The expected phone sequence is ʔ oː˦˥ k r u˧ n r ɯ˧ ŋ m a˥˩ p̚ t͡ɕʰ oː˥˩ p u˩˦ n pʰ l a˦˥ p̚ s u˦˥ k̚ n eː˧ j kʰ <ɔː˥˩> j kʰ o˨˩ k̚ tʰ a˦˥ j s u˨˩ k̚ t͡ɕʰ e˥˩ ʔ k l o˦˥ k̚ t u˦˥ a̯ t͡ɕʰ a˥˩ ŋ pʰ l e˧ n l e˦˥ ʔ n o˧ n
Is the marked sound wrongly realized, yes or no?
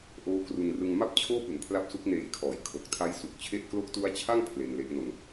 yes